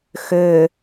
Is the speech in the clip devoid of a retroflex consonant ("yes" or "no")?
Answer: yes